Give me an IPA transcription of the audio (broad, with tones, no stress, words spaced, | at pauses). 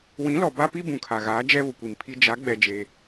wĩ˨˦lɔ˨ba˦pi˦ bũ˨kʰa˨ɣaː˨˦ d͡ʒɛ˦βʊ˨kʷi˨mpʰi˦ d͡ʒa˨˦ ɡ͡bɛ˦d͡ʒe˦